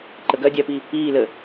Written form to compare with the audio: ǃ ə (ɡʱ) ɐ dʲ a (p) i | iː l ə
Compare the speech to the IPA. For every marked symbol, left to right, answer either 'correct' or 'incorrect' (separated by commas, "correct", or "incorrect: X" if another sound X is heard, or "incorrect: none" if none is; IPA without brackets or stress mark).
incorrect: ɡ, correct